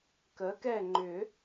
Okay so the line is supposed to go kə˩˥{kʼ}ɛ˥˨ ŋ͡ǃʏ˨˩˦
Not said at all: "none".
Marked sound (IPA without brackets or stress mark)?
k